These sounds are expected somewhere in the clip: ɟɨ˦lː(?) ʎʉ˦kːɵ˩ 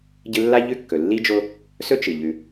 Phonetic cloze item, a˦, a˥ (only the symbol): a˥